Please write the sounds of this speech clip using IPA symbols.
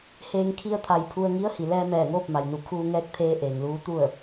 h eː˧ ŋ kʰ i˧ ə̯ t̪ʰ a˧˩ j pʰ u˧ ə̯ ŋ i˧˥ ə̯ h i˩ l ɛː˧ m ɛː˧˩ ŋ oː˥˨ p̚ m a˩ j n u˧˩ kʰ uː˧ ŋ ɛː˧ k̚ t̪ʰ eː˧ ʔ eː˩ ŋ l uː˧˥ t̪ u˥˨ ə̯

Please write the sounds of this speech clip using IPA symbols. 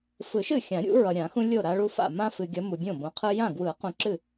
f ɯ˨˩˦ ʃ ɨ˥˩ xʲ ã˨˩˦ ɾʲ ṵ˨˦ ɹ ʌ˨ ɾʲ ã˨˩˦ x ũ˦ lʲ o˥˩ ɾ a˦ ɭ u˦ f a̰˥˩ m ã˦ f ɨ˨ ɡʲ ʌ˨˦ m u˨ bʲ õ˥˩ b õ˨˦ qʰ ɯ˦ j ã˥˩ ɡ w ɯ˨˩˦ q ũ˨ ǁ ɨ˥˩

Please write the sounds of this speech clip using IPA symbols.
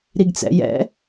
ɾ i ɡ t͡s ɛ̰ j ɛ̰

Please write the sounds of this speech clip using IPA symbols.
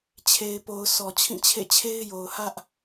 t͡ɕʰ e˨ ɪ̯ p o˨ ʊ̯ sʰ ɔ˨ t͡ɕʰ ĩ˦˨ t͡ɕʰ ḛ˦˨ t͡ɕʰ e˦ ɪ̯ j o˨ ʊ̯ h ä˦ ʔ

